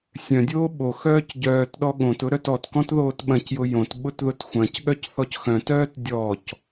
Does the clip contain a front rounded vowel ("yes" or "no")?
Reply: yes